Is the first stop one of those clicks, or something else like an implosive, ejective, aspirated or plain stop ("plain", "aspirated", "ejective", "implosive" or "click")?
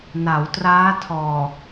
plain